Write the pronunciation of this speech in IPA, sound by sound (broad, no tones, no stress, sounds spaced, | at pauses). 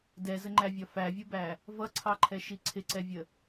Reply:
d ɛ z ə ŋ͡ǃ æ vʲ ɒ f æ vʲ u b æ | v ʌ ǀʰ ɑ ǃʰ ɛ ʃ i ǀʰ ɪ ǀ ɛ vʲ ə